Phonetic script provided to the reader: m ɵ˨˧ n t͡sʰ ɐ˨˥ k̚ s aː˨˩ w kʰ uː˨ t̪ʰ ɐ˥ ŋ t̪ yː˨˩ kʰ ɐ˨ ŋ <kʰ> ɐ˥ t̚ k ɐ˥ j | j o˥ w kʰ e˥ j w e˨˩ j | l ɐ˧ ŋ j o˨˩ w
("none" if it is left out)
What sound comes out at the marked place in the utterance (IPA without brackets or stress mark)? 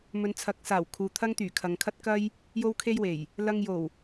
kʰ